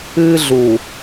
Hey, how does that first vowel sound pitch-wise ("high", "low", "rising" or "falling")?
high